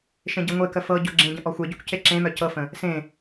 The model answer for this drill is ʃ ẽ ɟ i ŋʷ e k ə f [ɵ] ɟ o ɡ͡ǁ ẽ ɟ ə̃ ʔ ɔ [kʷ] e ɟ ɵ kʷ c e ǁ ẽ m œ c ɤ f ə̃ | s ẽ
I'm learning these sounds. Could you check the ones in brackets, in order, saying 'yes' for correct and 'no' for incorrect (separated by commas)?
no, no